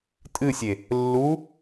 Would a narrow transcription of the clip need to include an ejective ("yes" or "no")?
yes